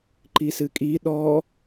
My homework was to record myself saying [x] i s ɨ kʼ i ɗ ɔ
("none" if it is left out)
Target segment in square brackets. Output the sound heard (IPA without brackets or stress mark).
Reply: ǃ